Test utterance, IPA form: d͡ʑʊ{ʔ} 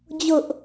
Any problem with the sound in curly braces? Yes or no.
no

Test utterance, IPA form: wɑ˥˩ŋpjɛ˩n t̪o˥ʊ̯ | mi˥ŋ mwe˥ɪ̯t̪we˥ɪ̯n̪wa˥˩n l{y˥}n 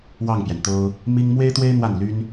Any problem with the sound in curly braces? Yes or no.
no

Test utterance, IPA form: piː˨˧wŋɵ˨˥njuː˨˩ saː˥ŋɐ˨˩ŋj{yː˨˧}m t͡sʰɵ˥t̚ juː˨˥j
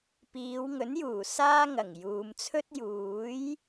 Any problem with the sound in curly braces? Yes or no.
yes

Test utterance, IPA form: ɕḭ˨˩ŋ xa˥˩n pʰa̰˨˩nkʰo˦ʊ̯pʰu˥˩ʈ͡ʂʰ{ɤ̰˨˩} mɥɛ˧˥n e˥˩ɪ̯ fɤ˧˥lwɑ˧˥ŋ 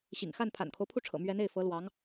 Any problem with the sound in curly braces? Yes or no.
no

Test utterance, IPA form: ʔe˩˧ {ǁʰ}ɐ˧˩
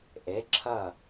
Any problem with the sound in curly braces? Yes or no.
no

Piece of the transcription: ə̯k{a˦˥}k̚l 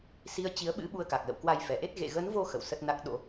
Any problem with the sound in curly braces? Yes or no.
yes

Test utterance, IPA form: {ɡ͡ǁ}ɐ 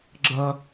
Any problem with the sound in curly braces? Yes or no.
no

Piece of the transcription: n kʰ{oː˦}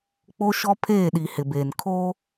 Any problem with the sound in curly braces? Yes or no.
no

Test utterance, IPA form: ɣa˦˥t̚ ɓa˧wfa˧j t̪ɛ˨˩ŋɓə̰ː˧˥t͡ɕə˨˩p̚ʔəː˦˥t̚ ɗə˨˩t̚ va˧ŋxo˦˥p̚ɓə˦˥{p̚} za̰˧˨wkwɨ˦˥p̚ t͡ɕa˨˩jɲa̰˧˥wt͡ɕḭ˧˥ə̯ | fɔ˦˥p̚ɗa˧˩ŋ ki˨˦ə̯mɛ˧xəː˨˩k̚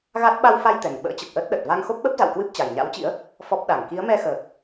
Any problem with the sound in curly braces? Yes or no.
no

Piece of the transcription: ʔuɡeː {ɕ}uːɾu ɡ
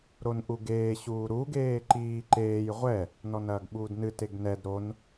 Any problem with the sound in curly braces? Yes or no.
no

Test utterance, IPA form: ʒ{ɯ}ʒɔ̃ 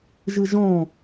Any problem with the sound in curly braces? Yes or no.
no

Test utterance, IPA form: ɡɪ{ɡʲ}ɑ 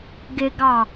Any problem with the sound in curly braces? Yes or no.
yes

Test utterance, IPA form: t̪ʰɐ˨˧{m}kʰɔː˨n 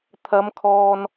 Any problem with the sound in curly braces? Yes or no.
no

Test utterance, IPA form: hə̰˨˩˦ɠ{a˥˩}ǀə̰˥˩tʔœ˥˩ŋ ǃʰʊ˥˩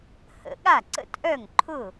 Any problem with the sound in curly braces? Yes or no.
no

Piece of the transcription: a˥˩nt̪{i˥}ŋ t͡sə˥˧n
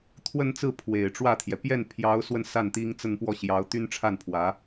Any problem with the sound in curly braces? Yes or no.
no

